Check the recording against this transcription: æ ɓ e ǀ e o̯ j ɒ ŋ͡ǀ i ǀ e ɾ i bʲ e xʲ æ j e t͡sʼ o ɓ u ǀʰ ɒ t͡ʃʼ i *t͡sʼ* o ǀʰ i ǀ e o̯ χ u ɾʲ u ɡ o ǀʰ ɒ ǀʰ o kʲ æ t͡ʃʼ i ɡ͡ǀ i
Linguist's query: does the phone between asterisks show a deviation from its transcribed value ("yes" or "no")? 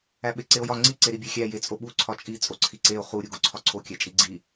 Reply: no